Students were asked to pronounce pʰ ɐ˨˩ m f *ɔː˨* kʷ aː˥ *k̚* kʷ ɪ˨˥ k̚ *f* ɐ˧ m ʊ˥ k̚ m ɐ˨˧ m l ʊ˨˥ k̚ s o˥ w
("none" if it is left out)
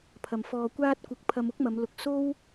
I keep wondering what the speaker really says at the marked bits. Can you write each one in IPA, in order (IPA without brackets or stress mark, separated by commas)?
ɔː˨, t̚, pʰ